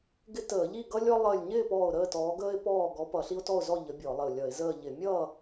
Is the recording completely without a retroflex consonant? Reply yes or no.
yes